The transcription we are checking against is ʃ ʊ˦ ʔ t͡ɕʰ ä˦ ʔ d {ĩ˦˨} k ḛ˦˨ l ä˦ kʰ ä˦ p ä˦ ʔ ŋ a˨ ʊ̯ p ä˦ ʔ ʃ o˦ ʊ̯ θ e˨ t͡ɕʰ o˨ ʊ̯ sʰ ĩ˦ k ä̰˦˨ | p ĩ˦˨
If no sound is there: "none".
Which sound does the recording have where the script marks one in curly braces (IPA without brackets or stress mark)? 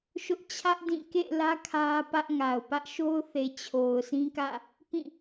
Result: ĩ˦˨